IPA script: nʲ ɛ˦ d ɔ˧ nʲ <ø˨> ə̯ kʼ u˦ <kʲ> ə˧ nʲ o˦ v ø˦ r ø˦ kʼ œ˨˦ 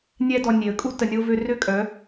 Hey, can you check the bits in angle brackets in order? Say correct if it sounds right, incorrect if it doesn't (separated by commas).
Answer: incorrect, incorrect